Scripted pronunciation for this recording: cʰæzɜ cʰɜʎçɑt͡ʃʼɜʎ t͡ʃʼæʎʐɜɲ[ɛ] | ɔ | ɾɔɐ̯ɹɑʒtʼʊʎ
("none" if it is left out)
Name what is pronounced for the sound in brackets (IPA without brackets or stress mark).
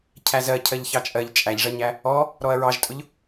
æ